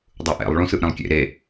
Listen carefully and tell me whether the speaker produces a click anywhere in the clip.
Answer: no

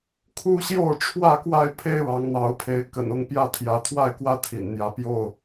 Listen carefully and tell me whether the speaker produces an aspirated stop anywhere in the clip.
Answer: yes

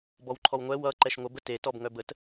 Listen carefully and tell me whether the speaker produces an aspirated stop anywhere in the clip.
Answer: yes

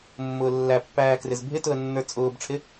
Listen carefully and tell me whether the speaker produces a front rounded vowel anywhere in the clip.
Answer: no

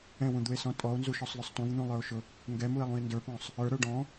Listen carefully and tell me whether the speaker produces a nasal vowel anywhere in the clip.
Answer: yes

